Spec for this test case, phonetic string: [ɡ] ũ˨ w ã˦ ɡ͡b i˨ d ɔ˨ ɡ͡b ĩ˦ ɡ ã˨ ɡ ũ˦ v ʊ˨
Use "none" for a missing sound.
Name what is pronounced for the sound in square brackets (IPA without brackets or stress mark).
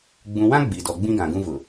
ɡ͡b